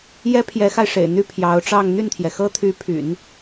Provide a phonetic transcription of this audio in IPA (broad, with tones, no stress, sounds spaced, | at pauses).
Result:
j ɛ˥ pʰ j ɛ˧˥ x a˧ ɪ̯ ʂ ḛ˨˩ ɪ̯ n̪ y˥˩ pʰ j ɑ˧˥ ʊ̯ ʈ͡ʂ ɑ˥˧ ŋ n̪ y˥˩ n t̪ʰ j ɛ˩ x ɤ˥ t̪ʰ y˧˥ pʰ y̰˨˩˦ n